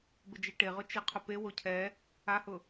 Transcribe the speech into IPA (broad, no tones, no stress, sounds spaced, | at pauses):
b ɪ d͡ʒ e ʈ e ʁ ʊ t͡ʃ i qʰ ʊ p e w o cʰ ɛ | a h ʊ